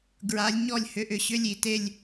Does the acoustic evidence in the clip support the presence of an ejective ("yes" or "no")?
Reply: no